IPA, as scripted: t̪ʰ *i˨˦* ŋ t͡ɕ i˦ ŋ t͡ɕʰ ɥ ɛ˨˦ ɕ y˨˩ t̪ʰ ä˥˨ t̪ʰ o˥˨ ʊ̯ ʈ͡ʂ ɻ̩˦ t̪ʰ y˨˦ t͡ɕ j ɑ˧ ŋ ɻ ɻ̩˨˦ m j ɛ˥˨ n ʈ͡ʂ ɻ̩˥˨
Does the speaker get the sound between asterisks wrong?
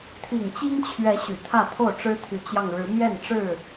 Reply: yes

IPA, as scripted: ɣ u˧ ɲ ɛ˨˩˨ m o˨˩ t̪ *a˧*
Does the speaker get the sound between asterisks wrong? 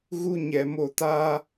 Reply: yes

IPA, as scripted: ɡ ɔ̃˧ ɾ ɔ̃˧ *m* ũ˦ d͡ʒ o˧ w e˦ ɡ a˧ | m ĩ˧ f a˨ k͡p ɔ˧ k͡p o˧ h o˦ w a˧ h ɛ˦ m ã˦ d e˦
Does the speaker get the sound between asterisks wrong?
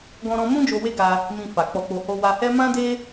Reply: no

